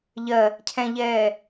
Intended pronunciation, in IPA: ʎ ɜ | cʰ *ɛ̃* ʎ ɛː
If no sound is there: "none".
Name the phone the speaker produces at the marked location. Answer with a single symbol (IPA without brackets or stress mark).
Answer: ɛ̃